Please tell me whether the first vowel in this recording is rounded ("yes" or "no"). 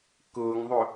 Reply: yes